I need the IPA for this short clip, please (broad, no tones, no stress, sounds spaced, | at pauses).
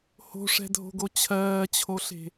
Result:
h o̤ ʂ ɛ̤ dʱ o̤ ɡ o t͡ɕʰ ɜː t͡ɕʰ o ɬ e̤